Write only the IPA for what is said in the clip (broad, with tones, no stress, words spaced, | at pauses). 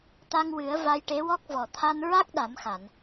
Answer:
t̪a˧ŋwɨ˨˩˦ə̯ va˧jʈe˧˥wɔ˦˥k̚ vɔ˨˩t̪ʰa˧nɹa˦˥k̚ ɗa˨˩˦mxa˨˩˨n